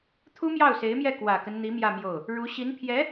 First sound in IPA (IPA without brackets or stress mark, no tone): t̪ʰ